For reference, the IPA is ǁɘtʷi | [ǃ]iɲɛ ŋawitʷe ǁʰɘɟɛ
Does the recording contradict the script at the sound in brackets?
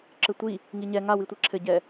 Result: yes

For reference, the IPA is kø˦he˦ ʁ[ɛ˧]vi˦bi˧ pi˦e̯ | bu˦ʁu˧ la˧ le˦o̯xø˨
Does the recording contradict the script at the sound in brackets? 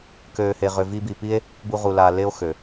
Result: yes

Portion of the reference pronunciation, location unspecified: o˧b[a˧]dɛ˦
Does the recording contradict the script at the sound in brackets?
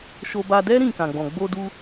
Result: no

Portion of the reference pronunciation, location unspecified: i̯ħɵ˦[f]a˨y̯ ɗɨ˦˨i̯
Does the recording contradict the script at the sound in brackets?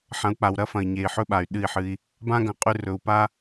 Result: yes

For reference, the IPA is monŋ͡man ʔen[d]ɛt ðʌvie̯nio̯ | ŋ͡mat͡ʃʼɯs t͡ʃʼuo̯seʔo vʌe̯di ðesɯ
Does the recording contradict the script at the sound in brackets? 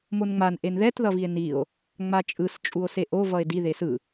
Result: yes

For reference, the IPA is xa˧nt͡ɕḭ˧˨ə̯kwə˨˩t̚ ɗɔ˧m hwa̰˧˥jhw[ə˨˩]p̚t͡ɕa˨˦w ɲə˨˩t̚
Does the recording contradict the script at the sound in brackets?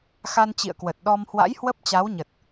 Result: yes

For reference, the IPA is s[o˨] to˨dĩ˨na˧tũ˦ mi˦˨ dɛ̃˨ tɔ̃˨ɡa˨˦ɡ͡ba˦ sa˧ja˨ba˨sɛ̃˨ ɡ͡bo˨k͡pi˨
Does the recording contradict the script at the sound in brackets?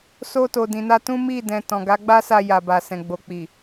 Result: yes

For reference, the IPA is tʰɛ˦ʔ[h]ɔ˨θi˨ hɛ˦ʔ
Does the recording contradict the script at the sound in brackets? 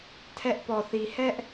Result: yes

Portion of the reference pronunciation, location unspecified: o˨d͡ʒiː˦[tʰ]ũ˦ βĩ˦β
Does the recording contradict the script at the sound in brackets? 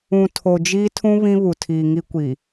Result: no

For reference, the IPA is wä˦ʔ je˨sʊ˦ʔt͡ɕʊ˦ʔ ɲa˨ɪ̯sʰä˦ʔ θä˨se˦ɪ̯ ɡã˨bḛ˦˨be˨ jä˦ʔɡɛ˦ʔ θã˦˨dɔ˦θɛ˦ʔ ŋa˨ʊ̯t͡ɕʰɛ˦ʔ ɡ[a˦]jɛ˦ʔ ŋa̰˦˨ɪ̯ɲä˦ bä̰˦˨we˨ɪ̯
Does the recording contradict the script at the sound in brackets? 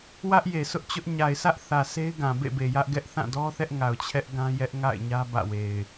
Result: yes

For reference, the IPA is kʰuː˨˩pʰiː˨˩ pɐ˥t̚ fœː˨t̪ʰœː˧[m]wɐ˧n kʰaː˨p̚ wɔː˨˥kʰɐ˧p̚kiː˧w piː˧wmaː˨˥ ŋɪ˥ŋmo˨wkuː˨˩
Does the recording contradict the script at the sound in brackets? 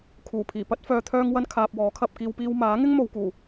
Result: yes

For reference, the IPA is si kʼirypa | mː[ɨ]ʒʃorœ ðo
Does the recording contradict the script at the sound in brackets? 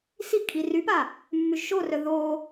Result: yes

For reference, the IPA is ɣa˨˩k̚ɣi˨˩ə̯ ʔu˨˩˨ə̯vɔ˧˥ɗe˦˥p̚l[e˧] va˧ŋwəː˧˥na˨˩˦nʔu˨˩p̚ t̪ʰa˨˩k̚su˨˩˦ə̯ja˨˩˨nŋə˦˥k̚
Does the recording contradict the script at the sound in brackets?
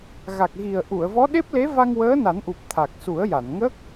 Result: yes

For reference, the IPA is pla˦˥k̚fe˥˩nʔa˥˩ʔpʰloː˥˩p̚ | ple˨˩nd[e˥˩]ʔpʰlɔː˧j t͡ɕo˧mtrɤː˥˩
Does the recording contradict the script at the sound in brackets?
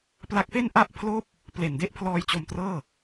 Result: no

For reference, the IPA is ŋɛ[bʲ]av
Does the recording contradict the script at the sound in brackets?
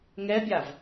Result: no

